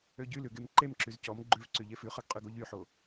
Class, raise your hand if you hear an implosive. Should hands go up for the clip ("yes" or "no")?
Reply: no